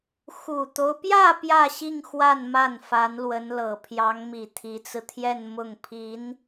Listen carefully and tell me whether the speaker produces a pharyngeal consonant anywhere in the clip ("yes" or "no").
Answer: no